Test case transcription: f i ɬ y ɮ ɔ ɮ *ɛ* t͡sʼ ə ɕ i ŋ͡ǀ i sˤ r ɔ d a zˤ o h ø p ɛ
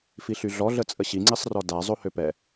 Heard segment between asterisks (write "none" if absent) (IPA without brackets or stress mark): ə